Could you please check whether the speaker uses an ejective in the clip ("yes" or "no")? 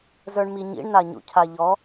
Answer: no